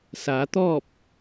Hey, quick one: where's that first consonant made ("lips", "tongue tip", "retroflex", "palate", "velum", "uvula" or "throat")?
tongue tip